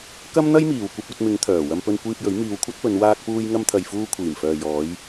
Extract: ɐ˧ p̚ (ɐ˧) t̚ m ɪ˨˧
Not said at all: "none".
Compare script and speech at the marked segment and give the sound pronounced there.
ɐ˧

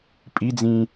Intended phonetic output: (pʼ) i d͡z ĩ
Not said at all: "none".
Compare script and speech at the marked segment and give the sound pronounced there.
pʼ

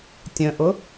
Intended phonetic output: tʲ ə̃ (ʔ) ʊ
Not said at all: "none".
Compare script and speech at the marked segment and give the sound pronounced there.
ʔ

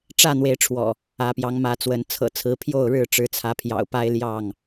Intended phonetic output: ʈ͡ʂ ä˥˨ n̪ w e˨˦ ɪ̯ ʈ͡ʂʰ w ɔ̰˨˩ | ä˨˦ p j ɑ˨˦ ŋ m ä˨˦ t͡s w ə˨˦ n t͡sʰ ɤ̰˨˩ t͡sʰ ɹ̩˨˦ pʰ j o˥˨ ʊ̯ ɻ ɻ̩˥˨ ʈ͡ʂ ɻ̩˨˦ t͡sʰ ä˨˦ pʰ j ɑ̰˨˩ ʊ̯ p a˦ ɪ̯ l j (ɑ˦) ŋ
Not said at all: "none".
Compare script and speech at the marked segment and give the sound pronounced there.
ɑ˥˨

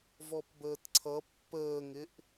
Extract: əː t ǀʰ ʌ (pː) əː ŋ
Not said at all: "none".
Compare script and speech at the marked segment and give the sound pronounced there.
pː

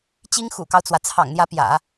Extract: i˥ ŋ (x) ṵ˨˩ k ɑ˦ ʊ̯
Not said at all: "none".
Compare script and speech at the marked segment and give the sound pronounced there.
x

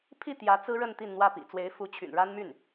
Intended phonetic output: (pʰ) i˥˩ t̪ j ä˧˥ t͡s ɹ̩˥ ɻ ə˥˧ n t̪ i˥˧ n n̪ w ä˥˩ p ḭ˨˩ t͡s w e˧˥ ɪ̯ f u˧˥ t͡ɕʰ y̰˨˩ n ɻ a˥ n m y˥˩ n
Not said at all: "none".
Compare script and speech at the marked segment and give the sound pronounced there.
pʰ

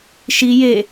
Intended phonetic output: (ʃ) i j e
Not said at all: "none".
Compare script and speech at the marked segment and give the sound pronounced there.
ʃ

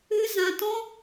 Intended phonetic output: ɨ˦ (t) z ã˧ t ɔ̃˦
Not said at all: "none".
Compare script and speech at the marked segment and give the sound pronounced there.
none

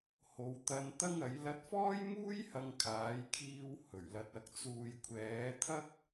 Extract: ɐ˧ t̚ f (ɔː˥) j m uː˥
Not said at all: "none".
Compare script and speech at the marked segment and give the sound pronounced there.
ɔː˥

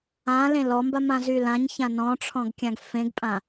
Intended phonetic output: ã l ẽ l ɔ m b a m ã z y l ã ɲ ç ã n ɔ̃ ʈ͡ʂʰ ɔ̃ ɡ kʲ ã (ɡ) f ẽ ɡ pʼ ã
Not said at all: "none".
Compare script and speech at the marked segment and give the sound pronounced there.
ɡ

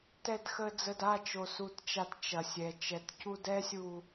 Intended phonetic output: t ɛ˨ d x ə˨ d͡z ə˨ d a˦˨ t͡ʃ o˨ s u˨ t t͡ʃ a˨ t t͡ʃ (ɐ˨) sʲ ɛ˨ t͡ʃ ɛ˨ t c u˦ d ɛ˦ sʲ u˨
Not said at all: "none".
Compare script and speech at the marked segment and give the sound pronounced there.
ɐ˨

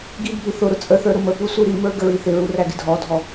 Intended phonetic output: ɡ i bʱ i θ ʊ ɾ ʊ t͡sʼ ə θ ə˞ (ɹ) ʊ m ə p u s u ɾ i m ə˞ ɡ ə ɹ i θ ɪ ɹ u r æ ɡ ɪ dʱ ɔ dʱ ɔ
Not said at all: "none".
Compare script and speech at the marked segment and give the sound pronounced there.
ɾ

